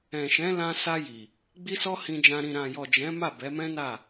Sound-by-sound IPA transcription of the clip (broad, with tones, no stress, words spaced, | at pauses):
ɛ̃˨ʃɛ̃˨˦ lã˧ sa˧ ji˨ | ɡ͡bi˦sɔ˦hĩ˧d͡ʒã˧ ɾĩ˨ɾã˨jɔ˨ d͡ʒɛ̃˨˦ma˦˨ bɛ˨˦mɛ̃˦na˦˨